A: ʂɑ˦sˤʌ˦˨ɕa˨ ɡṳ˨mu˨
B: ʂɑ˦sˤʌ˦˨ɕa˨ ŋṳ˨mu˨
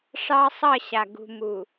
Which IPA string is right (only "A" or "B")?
A